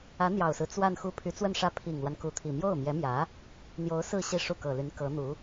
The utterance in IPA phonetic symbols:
ä˧˥ n̪jɑ˨˩ʊ̯sɹ̩˦ t͡swa˥˧nxu˥˩ pʰy˧˥ t͡swə˥˧nʂä˥˩ pʰi˨˩ŋlwa˦n ku˧˥t̪ʰi˨˩ mjo˥˩ʊ̯mjɛ˧˥mjä˧˥ | n̪jo˧˥ʊ̯ sɹ̩˥˧ ɕi˥˧ʂu˥˩kɤ˨˩ly˧˥n kɤ˧˥n̪u˧˥

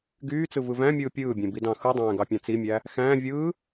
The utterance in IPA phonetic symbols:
ɡyː t͡sɯvɯvæ̃mʲɯː pʲɯːbʲẽ bidɑ̃xɯdˤæ̃ː ɡɑpʲɑ̃t͡simʲæ | xæ̃ː vʲɯː

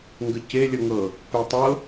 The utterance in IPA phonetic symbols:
ŋɡəce lʲəŋɤ | petˤɤ

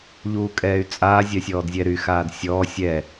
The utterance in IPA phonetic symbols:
ʎuːkʼɛːy̯t͡sʼaː zʲœsʲɔːdzʲɛɾy xaːdsʲɔː sʲɛ

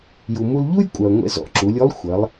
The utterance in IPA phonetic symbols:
ju˩mu˧lʎu˥j kʷʼœ˩ɐ̯ŋʷɛ̰˧ zɔ̰˩˧ǁu˩˧lʲo˧˥lˠ xʷɐ˩˧lˠ

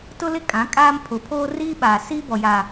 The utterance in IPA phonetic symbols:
tʊ˦lɪ˦ kʼã˨˦kʼaː˦mpʰʊ˨˦pʰoː˦ riː˦ɓaː˨ siː˦bɔ˨ja˨

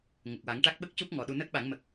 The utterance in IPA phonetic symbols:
ŋə˨˩k̚wa˨˩˦ŋʈa˦˥k̚ ɓə˦˥k̚cu˦˥p̚ ŋɔ˨˩ɗu˧ nəː˦˥k̚ɓa˨˩˦ŋmə˨˩k̚

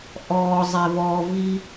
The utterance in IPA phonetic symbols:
ʔɔ zˤevɔvi

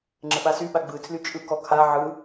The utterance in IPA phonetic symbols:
ŋ͡ǁəɓasyɓa ɡ͡bɯtʰly t͡ʃʼɯ kɔkʰa ʕɯ

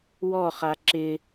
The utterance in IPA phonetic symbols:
wɔχa ǁɪ

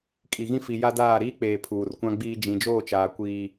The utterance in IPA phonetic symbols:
kʼi˨ɣĩ˦fi˨ ja˦daː˦˨ ɾiː˦k͡peː˨ pʰuː˨rkʷã˦ɡ͡biː˦ d͡ʒĩ˨d͡ʒoː˦˨t͡ʃaː˨ kʷiː˦

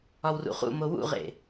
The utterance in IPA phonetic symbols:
ɒwrṵχṵmo wṵʁḛ

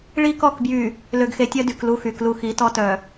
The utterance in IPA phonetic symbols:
ɭi˦kɔ˦˨k bjy˨ | lø˨ɡxe˨tʲœ˦ dy˨klu˦xy˨ klu˨xi˨˦ tɔ˦tœ˨

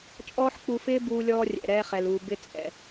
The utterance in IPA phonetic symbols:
t͡ʃʼɔː˥ħ k͡pu˧fɪː˥ buː˧lʲɔː˧rʲɛ̰˩ ɾɛː˧χɛ˩luː˩ bɪ˧ t͡sʼɛ̰˩

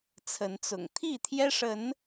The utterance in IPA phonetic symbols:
t͡sʰə˨˦nt͡sʊ̰˨˩ŋ t̪ʰi˥˨t̪ʰjɛ˦ʂə˨˦n

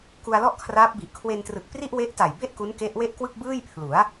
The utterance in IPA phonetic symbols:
ku˧a̯lɔ˥˩ʔkʰraː˦˥p̚bi˨˩ʔ kʰwe˧ntrɯ˨˩k̚ pri˥˩ʔwe˦˥ʔta˨˩jbe˥˩ʔ ku˦˥n ke˦˥ʔwe˥˩ʔkwɯ˥˩k̚ bɯː˥˩jpʰlu˩˦a̯

